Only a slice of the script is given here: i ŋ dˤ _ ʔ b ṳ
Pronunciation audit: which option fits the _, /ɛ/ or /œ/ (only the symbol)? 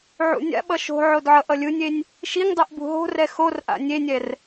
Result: ɛ